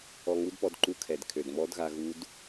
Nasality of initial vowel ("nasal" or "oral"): oral